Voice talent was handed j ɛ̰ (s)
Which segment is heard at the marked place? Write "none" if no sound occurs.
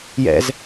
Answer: z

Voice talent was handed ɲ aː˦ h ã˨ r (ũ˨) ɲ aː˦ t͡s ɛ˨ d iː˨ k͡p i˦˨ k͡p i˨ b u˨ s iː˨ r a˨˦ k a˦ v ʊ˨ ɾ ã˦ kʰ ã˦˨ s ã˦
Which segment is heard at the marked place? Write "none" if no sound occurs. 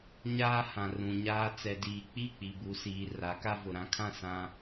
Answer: ũ˨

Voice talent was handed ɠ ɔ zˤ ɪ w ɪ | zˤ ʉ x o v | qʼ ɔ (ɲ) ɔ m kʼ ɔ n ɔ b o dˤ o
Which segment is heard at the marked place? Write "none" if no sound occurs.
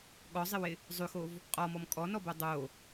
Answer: m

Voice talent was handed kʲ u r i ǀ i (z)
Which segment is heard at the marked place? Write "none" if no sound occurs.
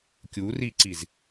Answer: z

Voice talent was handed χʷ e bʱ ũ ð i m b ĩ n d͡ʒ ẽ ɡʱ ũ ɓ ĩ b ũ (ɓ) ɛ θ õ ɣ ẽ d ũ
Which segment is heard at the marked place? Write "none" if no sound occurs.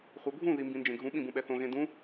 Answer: ɓ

